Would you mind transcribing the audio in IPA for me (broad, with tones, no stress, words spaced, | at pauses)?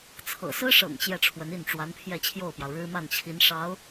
t͡sʰɤ̰˨˩sɹ̩˥ʂɤ̰˨˩ŋ t͡ɕjɛ˥˩ʈ͡ʂʰwə˧˥ni˥˩n ʈ͡ʂwa˧˥npʰjɛ˥˧t͡ɕʰjo˥˩ʊ̯pjɑ˩ʊ̯ ɻɻ̩˥ma˥˩nt͡ɕʰi˧˥n ʂɑ˧˥ʊ̯